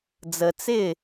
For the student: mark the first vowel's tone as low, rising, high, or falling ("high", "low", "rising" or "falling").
low